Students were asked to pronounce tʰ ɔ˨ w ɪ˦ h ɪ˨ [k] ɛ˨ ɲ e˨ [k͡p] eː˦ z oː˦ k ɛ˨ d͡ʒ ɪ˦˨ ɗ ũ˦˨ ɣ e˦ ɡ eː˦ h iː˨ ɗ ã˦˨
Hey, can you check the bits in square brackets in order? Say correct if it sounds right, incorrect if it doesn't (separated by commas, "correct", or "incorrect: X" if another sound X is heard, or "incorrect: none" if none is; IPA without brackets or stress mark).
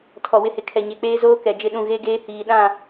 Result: incorrect: kʰ, correct